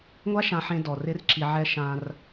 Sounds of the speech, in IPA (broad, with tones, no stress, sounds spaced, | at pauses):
ŋʷ a˥ ʃ ã˧ ħ ẽ˧ d ɔ˩ r ɪ˥ r ǁ i˧ ʕ ɛ˥ ʃ ã˧ r